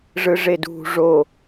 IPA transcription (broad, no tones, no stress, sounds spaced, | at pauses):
ʐ ɯ ʐ e d ṳ ʐ o